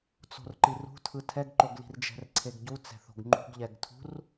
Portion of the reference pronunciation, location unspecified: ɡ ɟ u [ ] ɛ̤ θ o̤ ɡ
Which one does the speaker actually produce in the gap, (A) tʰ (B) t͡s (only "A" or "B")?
B